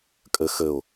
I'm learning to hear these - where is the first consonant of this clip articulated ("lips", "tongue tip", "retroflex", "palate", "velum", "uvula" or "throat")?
velum